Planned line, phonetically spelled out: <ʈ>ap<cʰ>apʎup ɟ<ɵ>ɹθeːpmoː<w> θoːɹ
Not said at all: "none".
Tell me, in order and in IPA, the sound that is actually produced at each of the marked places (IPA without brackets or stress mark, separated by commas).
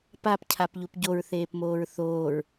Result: p, cʰ, o, ɹ